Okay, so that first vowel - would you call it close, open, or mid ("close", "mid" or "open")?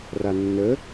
open